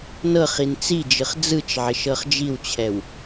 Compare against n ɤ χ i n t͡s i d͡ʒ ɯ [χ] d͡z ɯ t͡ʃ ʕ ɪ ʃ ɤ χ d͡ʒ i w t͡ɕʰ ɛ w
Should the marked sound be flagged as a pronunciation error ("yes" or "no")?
no